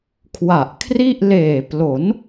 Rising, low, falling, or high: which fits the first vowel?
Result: low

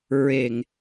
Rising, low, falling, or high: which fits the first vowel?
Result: low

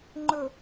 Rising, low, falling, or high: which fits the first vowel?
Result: low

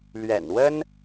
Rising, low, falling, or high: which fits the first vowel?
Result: low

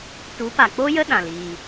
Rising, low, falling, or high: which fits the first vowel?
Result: rising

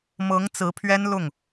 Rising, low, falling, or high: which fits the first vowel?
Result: rising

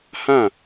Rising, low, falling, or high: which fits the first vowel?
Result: falling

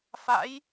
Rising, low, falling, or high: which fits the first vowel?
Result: rising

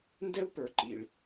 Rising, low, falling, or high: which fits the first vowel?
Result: high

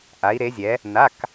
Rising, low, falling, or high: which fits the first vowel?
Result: rising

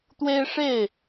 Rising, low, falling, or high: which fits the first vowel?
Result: high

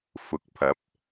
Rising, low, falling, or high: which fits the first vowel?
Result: rising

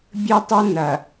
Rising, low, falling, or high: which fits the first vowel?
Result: high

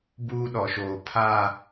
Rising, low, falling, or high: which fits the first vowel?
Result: high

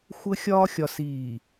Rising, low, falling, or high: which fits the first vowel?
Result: high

